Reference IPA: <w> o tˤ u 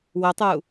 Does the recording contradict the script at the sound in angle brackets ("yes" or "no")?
no